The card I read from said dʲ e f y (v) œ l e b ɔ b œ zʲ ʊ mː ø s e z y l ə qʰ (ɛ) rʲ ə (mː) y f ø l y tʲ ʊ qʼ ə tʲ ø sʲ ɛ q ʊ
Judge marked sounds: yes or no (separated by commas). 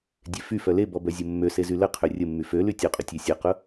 no, no, yes